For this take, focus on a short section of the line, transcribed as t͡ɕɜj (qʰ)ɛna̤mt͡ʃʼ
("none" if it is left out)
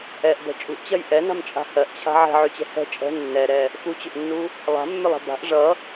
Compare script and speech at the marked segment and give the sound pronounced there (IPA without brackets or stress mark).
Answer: ʔ